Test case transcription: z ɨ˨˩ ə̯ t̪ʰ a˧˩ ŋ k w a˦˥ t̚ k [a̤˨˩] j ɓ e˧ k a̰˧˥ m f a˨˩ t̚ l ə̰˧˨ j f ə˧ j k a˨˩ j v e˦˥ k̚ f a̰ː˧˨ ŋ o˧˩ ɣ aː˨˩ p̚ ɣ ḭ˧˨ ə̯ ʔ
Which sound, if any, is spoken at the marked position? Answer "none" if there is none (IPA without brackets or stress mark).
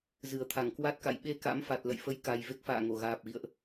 a̰˧˨